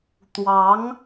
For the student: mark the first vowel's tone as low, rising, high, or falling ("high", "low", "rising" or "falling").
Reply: rising